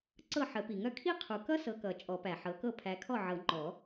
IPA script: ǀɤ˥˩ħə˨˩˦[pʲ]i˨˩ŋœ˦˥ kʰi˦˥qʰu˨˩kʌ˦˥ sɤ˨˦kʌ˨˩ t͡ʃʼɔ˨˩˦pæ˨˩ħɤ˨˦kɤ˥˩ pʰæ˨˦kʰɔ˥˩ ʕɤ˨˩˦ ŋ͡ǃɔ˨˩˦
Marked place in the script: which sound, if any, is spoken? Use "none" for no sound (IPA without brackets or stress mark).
p